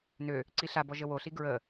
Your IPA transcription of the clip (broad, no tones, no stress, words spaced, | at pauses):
nø | ǀiɬabɔ ʒəwoɬi ɡɹə